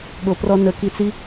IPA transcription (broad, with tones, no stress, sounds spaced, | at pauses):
ɠ o˨ p r ɔ˧ n ə˨ k i˧ t͡s i˦